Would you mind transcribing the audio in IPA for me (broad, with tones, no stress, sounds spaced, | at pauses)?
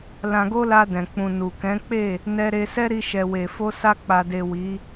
l ã˧ ɡ o˦ l a˧ d ɛ̃˨ k͡p ũ˨ n u˨ k ɛ̃˨˦ k͡p e˦˨ | n ɛ˧ ɾ e˧ s ɛ˦ ɾ i˧ ʃ ɛ˨ w e˨ f o˧ s a˧ k͡p a˨ d e˨ w i˨˦